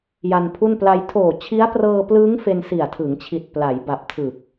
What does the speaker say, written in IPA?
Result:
j a˧ n pʰ u˥˩ n p l a˧ j tʰ oː˨˩ t͡ɕʰ i˦˥ a̯ p r ɤː˧ p l ɯː˦˥ ŋ f e˧ n s i˨˩ a̯ tʰ ɯ˩˦ ŋ t͡ɕʰ i˨˩ t̚ p l a˩˦ j b a˨˩ p̚ tʰ ɯ˨˩ k̚

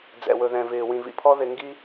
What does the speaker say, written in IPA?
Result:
d͡z ɛ̰˨ w ɵ˨ ð ɛ̃˨ v ɪː˨ w ĩ˨ v ḭ˨ pʰ ɔ˦ ð ɪ˨ ŋ ɡ i˦

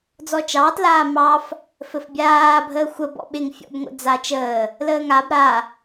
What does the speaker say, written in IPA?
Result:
d͡z ɔ t͡ʃ ɑː t l aː m ɑ f | f ɘ f bʲ aː bʱ əː xʷ ə b ɔ̰ ɓ ɪ ŋ fʲ ɔ̰ b ŋʷ ə̰ d͡z a t͡ʃ əː | l əː ŋ a b ɾ a

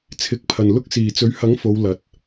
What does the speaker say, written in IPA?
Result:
t͡sʰ ɪ˨˥ k̚ pʰ ɐ˨ n l ʊ˥ k̚ s iː˨ t͡s ɵ˨˥ ɥ h ɐ˨˥ ŋ f o˨˧ w l ɐ˨˥ t̚

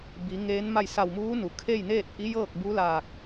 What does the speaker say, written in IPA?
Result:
b i˩˧ ŋ eː˧˥ n m a˥˨ j s a˧˩ w m uː˧˥ n u˩ kʰ e˥˨ j n eː˥˨ t̚ ʔ i˧˥ j ɤː˥˨ k̚ b u˧˥ l aː˧˩ k̚

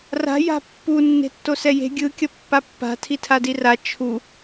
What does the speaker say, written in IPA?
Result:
r a̤ j a̤ pː u nː e̤ tː o s ɛ j e̤ ɡʲ ɯ kʲ ʌ pː a pː a̤ tʰ i tʰ a d i r a t͡ʃʰ u

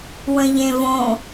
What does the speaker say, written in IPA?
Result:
w ə̃ ʎ ẽ v õ

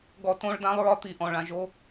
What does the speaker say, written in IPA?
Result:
ɡ ɔ˧ t õ˦ ɭ d ã˦ lˠ ɹ ɒ˦ t̪ i˨ ʔ ɔ̃˨ ɭ ã˨ ʒ o˧

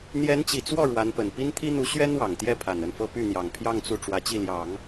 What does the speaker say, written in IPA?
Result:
n̪ j ɛ˧˥ n t͡ɕ i˨˩ t͡s w ɔ˥˩ ɻ w a˧˥ n p ə˨˩ n p i˥ n t̪ʰ i˥ n̪ u˧˥ ɕ ɥ ɛ˥ n w ɑ˨˩ ŋ t̪ j ɛ˥˩ pʰ a˨˩ n ə˥˩ n f ɤ˥ p y˥˩ n̪ j ɑ˨˩ ŋ pʰ j ɑ˥˧ ŋ t͡s u˥˩ ʈ͡ʂ w ä˧˥ t͡ɕ i˥˩ l j ɑ˨˩˦ ŋ

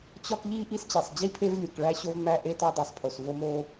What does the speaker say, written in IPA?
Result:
t͡ɕ ɒ˥ k ʎ i˥ ʔ i˥ s t͡ɕ e˩ sˤ d͡ʑ i˥ pʰ e˥ v lʲ u˩ k ɭ æ˥ ɕ o˥ v m æ˥ ʔ e˥ t ɒ˥ dˤ i˩ sˤ pʰ o˩ s v o˥ m o˥

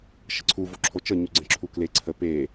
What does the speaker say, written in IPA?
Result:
ʃ ə ǀʰ u v o ǁʰ o t͡ʃ ə ɲ u ɡ͡ǀ ə̃ ǁʰ u k l e ǀʰ ə p e

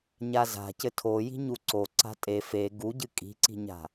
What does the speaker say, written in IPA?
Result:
ɲ a z a̤ c ɘ tʰ o j i̤ ɲ u ǀ o ǀ a̤ tʼ e f e ɡ u ɟ ɨ kʼ i̤ ǀ i̤ ɲ a̤

